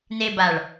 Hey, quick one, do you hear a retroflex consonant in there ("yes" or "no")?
yes